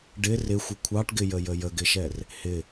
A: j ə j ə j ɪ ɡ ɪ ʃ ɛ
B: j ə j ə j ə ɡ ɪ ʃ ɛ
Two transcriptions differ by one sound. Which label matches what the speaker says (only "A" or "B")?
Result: B